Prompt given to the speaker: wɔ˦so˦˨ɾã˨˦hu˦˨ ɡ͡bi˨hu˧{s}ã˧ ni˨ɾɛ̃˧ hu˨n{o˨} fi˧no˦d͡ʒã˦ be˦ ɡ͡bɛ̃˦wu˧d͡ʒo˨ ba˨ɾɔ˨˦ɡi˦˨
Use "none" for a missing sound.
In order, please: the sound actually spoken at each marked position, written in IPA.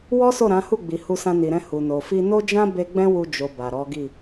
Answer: s, o˨

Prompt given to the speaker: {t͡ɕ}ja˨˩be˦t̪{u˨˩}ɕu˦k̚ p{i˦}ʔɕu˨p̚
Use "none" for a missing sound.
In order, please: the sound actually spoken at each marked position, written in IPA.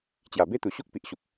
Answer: t͡ɕ, u˨˩, i˨

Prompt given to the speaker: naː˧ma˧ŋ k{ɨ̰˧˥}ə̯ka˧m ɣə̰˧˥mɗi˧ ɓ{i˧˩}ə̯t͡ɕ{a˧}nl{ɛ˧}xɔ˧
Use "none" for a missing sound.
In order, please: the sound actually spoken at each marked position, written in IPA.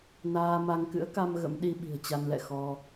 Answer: ɨ̰˧˥, i̤˨˩, a˧, ɛ̰˧˨

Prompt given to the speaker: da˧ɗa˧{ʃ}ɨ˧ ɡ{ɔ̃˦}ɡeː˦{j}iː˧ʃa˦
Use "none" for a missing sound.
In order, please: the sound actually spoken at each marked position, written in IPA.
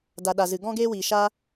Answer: z, ɔ̃˦, w

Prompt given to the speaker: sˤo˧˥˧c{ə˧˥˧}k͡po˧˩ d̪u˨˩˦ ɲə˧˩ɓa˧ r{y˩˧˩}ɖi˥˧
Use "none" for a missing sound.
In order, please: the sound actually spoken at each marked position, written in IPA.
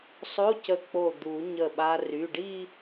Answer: ə˧˩, y˩˧˩

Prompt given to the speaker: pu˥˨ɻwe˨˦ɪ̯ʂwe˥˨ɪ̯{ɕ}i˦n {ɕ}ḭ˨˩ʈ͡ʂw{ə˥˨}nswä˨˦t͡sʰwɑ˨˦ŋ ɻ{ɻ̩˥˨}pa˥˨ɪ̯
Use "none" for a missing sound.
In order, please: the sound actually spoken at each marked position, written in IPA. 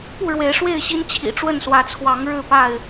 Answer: ɕ, t͡ɕʰ, ə˥˨, ɻ̩˥˨

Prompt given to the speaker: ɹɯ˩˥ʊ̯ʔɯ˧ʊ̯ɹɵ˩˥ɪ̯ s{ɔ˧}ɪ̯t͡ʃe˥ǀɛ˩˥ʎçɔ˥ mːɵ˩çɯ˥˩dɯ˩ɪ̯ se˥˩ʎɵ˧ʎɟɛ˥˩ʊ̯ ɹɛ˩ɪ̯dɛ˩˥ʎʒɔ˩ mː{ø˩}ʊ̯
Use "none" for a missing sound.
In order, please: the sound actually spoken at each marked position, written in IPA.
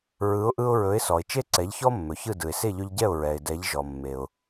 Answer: ɔ˩, e˩

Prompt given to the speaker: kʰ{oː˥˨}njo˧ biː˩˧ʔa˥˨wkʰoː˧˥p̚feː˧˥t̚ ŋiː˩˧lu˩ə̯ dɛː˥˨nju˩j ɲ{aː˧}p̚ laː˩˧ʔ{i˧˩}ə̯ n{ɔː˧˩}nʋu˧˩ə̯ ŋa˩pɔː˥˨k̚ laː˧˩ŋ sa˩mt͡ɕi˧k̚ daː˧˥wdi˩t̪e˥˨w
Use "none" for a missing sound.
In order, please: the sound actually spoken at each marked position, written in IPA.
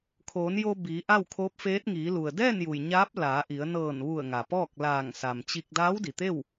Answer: oː˩˧, aː˧˥, i˩˧, ɤː˧˩

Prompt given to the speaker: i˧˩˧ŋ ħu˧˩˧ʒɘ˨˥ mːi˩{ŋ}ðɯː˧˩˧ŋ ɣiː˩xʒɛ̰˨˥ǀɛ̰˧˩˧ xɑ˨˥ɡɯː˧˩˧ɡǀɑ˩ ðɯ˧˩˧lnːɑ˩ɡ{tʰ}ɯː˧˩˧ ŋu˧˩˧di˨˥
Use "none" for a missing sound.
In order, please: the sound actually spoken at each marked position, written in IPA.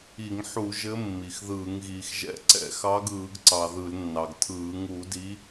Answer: x, tʰ

